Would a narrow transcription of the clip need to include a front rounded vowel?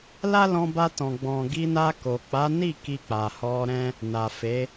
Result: no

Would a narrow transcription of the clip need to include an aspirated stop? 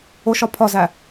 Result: yes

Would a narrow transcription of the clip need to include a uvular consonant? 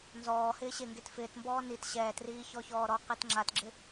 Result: yes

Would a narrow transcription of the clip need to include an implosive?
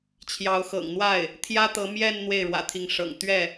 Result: no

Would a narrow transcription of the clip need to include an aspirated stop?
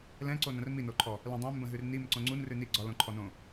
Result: yes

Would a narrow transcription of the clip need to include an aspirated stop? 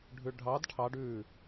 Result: yes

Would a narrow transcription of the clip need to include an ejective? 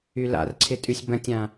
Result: yes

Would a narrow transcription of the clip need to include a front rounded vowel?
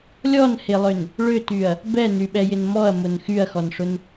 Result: yes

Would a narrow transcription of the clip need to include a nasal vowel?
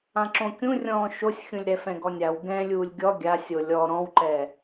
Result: yes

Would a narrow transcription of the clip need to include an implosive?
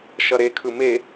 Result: no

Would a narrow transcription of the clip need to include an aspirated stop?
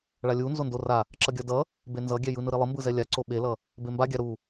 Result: no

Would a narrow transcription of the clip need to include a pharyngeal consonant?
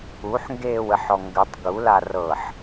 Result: yes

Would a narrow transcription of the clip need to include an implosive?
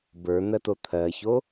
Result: no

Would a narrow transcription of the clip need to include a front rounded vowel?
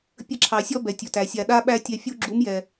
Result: no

